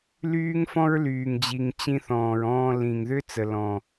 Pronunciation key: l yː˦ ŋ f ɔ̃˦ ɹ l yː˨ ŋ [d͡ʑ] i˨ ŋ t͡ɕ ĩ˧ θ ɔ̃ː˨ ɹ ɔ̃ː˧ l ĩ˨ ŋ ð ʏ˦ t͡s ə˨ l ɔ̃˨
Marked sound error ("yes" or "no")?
no